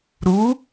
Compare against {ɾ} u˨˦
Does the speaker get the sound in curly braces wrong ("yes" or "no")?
no